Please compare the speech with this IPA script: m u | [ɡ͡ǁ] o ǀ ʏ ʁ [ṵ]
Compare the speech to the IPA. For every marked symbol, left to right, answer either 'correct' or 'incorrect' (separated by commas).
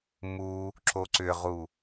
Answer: incorrect, incorrect